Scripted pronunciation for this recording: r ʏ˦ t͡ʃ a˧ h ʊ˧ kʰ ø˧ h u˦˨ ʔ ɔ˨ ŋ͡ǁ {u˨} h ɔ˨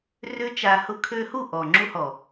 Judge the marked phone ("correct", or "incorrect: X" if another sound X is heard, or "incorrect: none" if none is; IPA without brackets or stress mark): incorrect: u˧